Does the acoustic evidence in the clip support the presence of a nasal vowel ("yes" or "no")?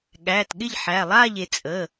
no